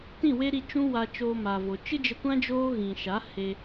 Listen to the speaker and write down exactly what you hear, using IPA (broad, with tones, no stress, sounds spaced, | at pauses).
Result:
t ĩ˦˨ w e˦ ɾ i˧ t͡ʃ ũ˦ w a˧ t͡ʃ oː˧ m a˨ v o˨ t͡ʃ ɨ˦ d͡ʒ ə˧ kʷ ã˦ d͡ʒ oː˦ ɣ ĩ˨ ʃ a˨˦ h e˧